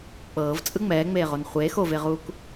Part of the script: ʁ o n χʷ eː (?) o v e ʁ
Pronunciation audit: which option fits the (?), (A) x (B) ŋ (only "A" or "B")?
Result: A